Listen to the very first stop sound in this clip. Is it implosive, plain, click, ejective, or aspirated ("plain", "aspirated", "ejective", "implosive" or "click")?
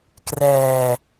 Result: plain